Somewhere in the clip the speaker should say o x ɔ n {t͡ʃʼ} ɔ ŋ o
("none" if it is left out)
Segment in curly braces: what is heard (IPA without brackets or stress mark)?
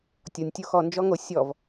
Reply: d͡ʒ